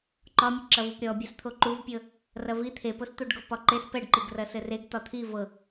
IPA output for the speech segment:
ǃ ɒ mʲ ɘ ǁ ɐ v u p ɾʲ ɔ bʲ o s t̪ʰ o ǃ u v pʲ ɤ | r ɐ v i t̪ʰ e p o s t̪ u ɖ ɡ o p ɒ ǃ e s p ɛ ɖ ǃ i ɡ r ɐ s ɘ r e ɡ t̪ ɒ t̪ʰ i v ɤ

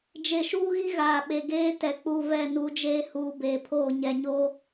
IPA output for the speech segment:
d͡ʒ e˨ ʃ uː˦ ɣ i˦ ɣ aː˨ ɓ e˨ ɡ eː˦ t ɛ˨ k͡p u˨ v ɛ˦˨ n u˨˦ d͡ʒ eː˦ h uː˨ b eː˨ pʰ oː˦˨ ɲ ɛ˨ ɲ oː˦

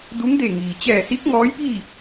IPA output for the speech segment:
d u˧˥ ŋ d e˧˩ ŋ iː˩ t͡ɕ ɛː˧˩ s i˧˥ k̚ ŋ ɔː˧˥ j p iː˥˨

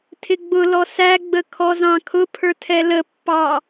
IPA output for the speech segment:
tʰ ɪ ɡ͡b ʊ l ɔ s æ ɡ͡b ə kʰ ɔ z ɑ̃ kʰ ʊ pʰ ə˞ tʰ ɛ l ə pː ɑ

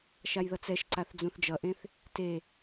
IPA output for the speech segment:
ʃ a j ð ʌ t͡s ɛ ʃ ǀ a θ d͡z ũ θ d͡ʒ ʌ ʔ ẽ θ | t e

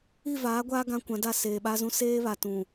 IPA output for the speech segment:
i˦˨ v aː˨˦ ɡʷ aː˦ ɡ ã˦ kʷ ã˨˦ d a˦˨ s eː˨ ɓ a˦ z ũ˦ s eː˦ β a˨ t ũ˨

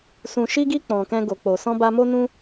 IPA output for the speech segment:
s ũ˨ ʃ i˧ ɡ i˧ k͡p ɔ̃˨ k ɛ̃˧ ɡ o˨ k͡p o˨ s ɔ̃˧ b a˧ m o˦ n ũ˦

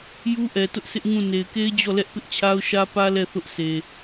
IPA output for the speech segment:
j u˦ ʔ ɛ˨ t ʊ˦ ʔ sʰ ɪ˦ ʔ ŋ ũ˦˨ n e˨ ɪ̯ k e˦ ɪ̯ d͡ʑ ɔ˦˨ l ɛ˦ ʔ p ɪ˦ ʔ t͡ɕʰ a˦ ʊ̯ ʃ ä˦ p ä˦ l ɛ˦˨ θ ʊ˦ ʔ sʰ e˨

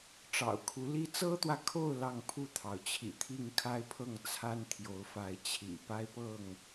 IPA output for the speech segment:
ʈ͡ʂ ɑ̰˨˩ ʊ̯ kʰ u˨˦ l i˦ t͡s ɤ˦ t̪ w ä˨ kʰ o˥˨ ʊ̯ l ɑ˥˨ ŋ pʰ u˥˨ t̪ʰ ɑ˩ ʊ̯ t͡ɕʰ ḭ˨˩ t̪ʰ i˥˨ ŋ kʰ a˦ ɪ̯ pʰ ɤ˥˨ ŋ t͡sʰ a˦ n t̪ʰ j o˨˦ ʊ̯ f a˨˦ ɪ̯ t͡ɕʰ ḭ˨˩ p a˦ ɪ̯ p ɤ˥˨ ŋ

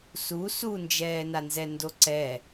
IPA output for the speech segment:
s u s u n d͡ʒ ɛː n a n z ɛ n d o ǀ ɛ

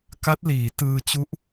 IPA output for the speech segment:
k a˦˥ t̚ l iː˩˦ t ɯː˧ t͡ɕ u˦˥ ʔ

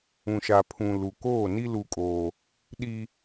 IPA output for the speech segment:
ũ˨ ʃ a˨ pʰ ũ˨ l u˨ k oː˦˨ n i˦ l u˦ kʼ oː˦ | ɗ i˦

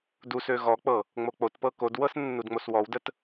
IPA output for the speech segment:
d u s ø ɣ ɔ k͡p ɤ | ŋ͡m o k͡p o t p ɤ k o d w ɤ s nː u d ŋ͡m o s w ɔ w d ə t

